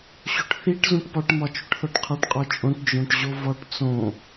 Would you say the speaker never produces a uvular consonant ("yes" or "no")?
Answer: no